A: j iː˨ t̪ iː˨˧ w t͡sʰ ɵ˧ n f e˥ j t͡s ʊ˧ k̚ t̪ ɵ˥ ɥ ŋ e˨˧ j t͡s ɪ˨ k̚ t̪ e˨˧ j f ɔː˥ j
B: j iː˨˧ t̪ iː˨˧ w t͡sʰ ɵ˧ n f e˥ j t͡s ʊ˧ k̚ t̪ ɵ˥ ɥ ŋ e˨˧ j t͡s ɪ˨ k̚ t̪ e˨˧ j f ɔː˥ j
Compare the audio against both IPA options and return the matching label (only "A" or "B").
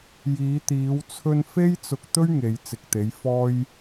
B